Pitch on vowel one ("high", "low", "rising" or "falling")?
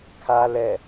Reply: low